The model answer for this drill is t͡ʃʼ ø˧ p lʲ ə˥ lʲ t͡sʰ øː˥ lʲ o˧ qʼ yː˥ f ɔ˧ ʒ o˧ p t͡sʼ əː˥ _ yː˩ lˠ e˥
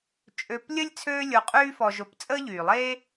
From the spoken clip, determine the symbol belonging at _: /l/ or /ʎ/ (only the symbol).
ʎ